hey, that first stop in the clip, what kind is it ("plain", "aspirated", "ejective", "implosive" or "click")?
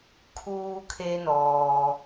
aspirated